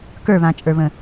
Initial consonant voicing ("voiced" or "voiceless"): voiceless